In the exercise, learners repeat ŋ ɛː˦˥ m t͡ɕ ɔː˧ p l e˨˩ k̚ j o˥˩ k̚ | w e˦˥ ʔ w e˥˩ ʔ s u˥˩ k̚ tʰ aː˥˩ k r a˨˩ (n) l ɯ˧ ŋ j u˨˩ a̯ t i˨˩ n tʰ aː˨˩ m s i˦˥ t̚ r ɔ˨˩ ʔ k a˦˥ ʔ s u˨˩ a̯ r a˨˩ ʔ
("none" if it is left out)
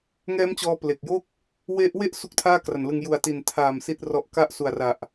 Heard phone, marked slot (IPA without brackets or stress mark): n